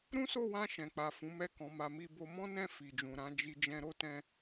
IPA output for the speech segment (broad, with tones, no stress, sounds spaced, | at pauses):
ɾ ũ˦ s o˦˨ w ã˧ ʃ ɛ̃˨ k͡p a˨ f ũ˨˦ m ɛ˦˨ k ɔ̃˨˦ m a˧ m i˧ b o˧ m ɔ̃˦ n ɛ̃˦˨ f i˨ d͡ʒ ũ˨ ɾ ã˨˦ d͡ʒ i˧ d͡ʒ ɛ̃˧ ɾ o˦ t ɛ̃˧